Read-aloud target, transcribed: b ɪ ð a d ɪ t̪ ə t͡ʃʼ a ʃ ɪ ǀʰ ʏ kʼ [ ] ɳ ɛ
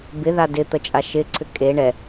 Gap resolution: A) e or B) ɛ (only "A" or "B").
A